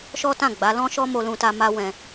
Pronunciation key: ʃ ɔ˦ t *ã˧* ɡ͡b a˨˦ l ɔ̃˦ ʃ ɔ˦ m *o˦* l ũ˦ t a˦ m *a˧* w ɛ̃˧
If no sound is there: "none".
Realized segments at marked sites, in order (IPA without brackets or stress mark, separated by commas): ã˦˨, o˦, a˦